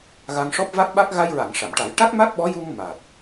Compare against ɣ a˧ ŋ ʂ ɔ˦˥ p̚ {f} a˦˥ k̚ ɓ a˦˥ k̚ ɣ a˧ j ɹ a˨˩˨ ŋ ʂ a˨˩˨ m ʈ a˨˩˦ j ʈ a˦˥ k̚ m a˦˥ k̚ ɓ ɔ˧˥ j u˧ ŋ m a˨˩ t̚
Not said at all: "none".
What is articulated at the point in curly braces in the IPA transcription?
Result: v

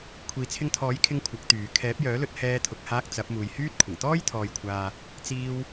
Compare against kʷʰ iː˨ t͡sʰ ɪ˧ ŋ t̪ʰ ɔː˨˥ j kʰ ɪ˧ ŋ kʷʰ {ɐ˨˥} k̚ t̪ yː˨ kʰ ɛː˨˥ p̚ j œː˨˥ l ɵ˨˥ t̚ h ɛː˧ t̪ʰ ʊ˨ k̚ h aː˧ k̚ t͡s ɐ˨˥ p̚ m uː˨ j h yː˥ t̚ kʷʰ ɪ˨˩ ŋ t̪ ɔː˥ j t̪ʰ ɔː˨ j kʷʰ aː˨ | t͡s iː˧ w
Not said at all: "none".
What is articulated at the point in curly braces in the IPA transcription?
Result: ɐ˨˥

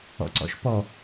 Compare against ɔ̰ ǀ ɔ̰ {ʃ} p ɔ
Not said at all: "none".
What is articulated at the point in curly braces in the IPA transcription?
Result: ʃ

